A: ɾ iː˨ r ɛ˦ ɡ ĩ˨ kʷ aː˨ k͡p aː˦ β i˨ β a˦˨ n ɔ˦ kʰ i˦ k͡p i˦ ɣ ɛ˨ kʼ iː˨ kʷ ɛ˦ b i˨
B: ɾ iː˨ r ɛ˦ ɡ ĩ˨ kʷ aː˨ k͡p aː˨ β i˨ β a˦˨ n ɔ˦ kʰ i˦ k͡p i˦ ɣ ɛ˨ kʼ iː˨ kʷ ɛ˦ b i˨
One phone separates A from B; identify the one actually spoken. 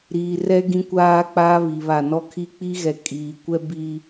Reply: A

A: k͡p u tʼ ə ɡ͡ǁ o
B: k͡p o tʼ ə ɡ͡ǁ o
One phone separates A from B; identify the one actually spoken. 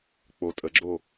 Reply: B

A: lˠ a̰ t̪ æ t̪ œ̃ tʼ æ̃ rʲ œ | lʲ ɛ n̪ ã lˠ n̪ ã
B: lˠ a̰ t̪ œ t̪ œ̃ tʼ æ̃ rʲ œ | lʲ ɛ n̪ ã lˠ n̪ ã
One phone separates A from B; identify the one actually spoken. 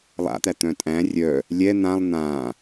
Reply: A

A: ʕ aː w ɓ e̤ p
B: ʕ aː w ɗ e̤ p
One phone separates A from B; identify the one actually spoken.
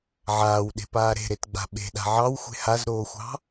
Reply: B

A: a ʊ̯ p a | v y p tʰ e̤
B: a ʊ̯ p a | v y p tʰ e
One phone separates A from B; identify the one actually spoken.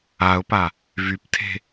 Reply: A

